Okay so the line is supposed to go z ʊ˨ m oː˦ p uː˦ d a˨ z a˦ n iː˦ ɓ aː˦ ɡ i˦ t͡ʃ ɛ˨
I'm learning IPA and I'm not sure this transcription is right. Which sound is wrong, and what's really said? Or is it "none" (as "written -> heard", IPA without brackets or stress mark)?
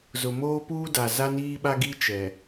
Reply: aː˦ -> a˦